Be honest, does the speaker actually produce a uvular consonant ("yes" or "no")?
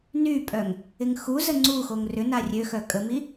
no